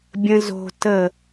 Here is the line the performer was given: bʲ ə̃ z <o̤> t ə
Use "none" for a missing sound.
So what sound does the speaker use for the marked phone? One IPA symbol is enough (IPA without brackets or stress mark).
o̤